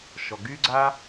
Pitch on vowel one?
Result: low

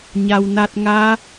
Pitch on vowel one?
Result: low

